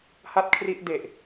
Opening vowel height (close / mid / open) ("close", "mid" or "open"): open